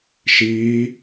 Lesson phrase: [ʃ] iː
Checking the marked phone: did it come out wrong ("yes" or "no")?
no